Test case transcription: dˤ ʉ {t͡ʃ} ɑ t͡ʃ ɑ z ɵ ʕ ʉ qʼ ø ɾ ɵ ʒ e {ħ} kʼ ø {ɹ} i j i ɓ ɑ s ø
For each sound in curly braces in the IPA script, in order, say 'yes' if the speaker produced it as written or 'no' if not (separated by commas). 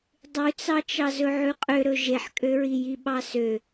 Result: no, yes, yes